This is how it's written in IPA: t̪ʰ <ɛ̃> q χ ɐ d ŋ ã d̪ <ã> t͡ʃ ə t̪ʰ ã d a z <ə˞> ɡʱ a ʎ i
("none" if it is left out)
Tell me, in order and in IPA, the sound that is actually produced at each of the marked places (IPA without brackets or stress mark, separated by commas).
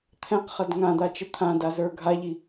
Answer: ɛ̃, a, ə˞